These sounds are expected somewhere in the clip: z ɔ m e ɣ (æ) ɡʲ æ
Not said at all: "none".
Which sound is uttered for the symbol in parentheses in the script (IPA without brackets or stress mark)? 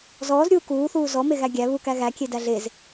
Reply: æ